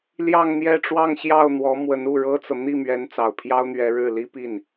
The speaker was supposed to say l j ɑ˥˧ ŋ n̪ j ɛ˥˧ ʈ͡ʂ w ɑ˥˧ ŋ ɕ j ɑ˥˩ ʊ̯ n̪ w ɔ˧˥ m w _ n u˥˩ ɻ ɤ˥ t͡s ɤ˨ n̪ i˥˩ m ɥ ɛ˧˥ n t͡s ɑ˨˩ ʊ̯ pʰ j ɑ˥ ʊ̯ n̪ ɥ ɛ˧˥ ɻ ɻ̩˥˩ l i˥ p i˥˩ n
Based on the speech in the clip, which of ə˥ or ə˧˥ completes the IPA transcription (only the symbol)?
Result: ə˧˥